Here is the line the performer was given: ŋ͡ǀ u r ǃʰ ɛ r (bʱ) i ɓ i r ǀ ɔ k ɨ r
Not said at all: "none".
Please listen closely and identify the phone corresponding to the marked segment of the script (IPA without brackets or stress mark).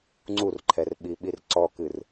ɓ